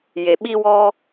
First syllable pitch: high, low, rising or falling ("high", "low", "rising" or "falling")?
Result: low